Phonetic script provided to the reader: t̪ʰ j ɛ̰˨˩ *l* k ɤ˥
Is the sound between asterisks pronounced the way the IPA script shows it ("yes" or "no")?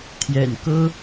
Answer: no